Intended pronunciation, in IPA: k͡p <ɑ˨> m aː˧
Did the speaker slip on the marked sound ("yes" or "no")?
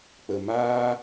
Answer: yes